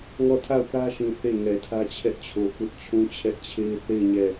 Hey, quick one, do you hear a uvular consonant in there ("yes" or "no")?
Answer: no